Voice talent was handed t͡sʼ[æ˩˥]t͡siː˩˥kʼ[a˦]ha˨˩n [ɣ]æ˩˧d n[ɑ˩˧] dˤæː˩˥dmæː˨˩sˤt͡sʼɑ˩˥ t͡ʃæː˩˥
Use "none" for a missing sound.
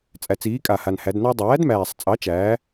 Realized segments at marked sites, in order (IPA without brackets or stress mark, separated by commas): æ˩˧, a˨˩, h, ɑ˦